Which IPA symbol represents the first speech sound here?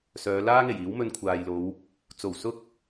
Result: s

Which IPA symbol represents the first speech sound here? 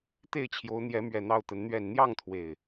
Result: t̪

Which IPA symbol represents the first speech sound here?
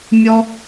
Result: mʲ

